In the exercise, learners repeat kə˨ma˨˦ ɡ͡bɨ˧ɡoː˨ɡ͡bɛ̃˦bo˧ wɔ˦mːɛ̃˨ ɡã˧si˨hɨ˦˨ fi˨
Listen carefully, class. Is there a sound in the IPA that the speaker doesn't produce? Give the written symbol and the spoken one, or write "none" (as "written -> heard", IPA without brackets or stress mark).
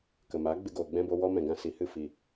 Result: mː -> m